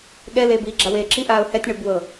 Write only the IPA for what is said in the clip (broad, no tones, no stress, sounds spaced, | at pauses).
ɠ ɛ l eː b iː ɡ͡ǁ a w eː ǁ i ʔ aː ʊ̯ h ɛ tʲ ɳ ɤ b w ɤ